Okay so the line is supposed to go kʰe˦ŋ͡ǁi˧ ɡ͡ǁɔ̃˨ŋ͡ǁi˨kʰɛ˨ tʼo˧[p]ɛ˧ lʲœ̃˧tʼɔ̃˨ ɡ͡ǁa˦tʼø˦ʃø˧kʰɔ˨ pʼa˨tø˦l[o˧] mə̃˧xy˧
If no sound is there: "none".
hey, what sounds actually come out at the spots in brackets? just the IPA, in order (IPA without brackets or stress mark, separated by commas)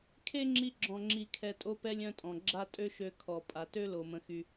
p, o˨